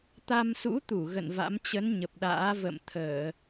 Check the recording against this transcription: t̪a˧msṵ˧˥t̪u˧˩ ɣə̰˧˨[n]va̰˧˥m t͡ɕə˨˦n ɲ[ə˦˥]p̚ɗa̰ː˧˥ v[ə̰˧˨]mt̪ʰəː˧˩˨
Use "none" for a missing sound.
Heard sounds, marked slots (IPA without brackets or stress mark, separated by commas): n, ə˨˩, ə̰˧˨